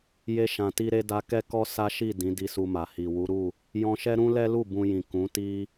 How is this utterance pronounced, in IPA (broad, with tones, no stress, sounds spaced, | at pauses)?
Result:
j e˧ ʃ ã˨ t i˧ ɾ e˧ d a˧ k ɛ˦ k ɔ˦ s a˦ ʃ i˦˨ d ĩ˨˦ d i˧ s u˧ m a˨ h i˨ w u˨˦ ɾ u˦˨ | j ɔ̃˧ ʃ ɛ˦ ɾ ũ˦ l ɛ˦ l u˦˨ b ũ˧ j ĩ˨ k ũ˨˦ t i˦